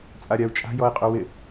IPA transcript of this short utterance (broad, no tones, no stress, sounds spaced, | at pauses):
t͡sʼ a ɾʲ a u̯ t͡ʃʼ a̤ j ɔ i̯ qʼ ʉ w ɪ